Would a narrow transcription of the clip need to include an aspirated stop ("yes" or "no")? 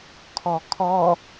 yes